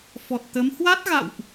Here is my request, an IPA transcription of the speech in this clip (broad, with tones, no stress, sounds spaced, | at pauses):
f ɔ˨˩ t̚ t̪ ə˨˦ m h w a˦˥ t̚ ɣ a̰˧˨ w ʔ